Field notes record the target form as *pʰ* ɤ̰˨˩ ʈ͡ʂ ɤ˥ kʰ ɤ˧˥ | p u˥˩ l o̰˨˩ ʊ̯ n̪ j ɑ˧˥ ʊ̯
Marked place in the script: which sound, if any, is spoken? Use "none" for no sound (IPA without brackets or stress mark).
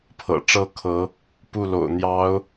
pʰ